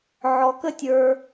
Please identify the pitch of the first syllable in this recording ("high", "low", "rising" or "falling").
low